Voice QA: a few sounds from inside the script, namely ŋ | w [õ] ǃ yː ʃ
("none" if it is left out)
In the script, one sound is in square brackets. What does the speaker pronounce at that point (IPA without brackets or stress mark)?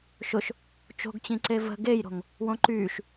õ